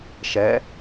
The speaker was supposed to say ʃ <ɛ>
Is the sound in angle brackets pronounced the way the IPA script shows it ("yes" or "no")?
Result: yes